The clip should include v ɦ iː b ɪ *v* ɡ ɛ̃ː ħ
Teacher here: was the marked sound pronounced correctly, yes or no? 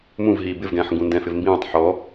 yes